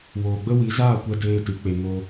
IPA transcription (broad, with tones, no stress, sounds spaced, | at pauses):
w oː˨ ɡ͡b ə˦ w i˨˦ z aː˦˨ kʷ ɛ˧ d eː˧ t ɨ˨ k͡p e˨ ŋ o˧